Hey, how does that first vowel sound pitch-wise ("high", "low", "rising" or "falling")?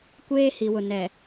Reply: high